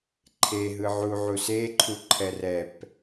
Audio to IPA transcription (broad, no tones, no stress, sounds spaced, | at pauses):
ǃʰ e ɦ ɯ ʕ u ʕ u s e ǃʰ u ǃʰ ɛ r ɛ p